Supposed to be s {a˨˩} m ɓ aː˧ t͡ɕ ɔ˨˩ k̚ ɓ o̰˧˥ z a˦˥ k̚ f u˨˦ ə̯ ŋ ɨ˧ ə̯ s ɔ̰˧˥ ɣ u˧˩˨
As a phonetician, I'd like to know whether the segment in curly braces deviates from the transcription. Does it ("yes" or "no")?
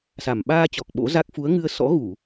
no